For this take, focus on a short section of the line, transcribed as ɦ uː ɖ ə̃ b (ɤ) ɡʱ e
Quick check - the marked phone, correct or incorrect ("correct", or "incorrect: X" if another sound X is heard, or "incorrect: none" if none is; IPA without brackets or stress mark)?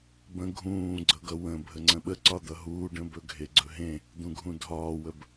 incorrect: ɵ